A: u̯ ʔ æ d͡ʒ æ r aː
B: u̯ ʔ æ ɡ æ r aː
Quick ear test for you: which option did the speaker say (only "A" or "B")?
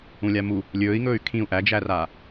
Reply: A